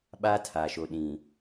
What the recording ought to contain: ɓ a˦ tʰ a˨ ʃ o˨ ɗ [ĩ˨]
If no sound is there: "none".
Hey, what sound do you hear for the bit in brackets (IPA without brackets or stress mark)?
ĩ˨